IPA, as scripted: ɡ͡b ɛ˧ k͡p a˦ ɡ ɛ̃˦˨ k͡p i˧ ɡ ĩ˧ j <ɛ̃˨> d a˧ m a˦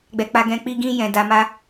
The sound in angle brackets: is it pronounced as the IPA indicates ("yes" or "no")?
yes